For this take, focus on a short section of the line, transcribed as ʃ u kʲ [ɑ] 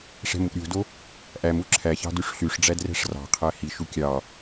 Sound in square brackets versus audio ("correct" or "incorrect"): correct